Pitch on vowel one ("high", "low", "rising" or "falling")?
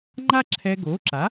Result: high